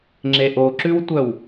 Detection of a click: present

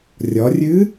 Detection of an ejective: absent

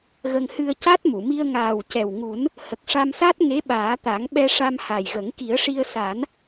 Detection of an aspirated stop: absent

